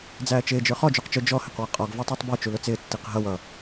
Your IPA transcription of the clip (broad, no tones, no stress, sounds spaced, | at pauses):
d͡z æː t͡ʃ ɪː d͡ʒ ə˞ χ ɔ d͡ʒ u q t͡ʃ ʊ d͡ʒ ɔ h ɪ q w ʌ qʼ ɔ ɡ v æ tˤ ɪː tˤ b ə˞ t͡ʃ u l ʊ t͡s ɪː tː i q ɦ ʌ w ʌ